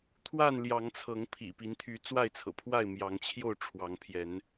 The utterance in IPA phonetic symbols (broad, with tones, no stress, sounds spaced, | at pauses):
t̪ʰ w a˥˨ n l j ɑ˨˦ ŋ t͡sʰ ɤ˨˦ ŋ pʰ ḭ˨˩ p i˨˦ n t̪ʰ y˨˦ t͡s w a˥˨ ɪ̯ t͡sʰ ɤ̰˨˩ pʰ w a˥˨ ɪ̯ m j ɑ˨˦ ŋ t͡ɕʰ j o˥˨ ʊ̯ ʈ͡ʂʰ w ɑ˨˦ ŋ pʰ j ɛ˨˦ n